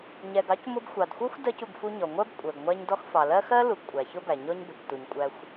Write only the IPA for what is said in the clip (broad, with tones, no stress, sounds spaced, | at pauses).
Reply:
ɲ ɛ˨ ɡ ɑ˥ c m ʊ˦ b xʷ ɑ˩ d xʷ ɜ˥ xʷ d ɜ˦ c u˨ ɡ f u˦ ɲ ɔ˩ ŋʷ ɜ˥ b kʷʼ ɜ˩ ɡ ŋʷ æ˦ ɲ d ɔ˦ x f ɑ˩ l ɜ˥ x ɜ˦ l u˨ ɡ kʷʼ æ˩ ç ʊ˦ b æ˩ ɲ ɔ˦ ɲ b ʊ˩ c t u˨ ɲ kʷʼ æ˦ xʷ